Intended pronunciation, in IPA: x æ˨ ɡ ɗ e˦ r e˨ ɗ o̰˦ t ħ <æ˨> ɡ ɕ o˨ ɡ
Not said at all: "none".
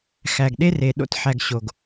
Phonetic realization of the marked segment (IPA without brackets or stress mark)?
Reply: æ˨